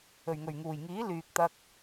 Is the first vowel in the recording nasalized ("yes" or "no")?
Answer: no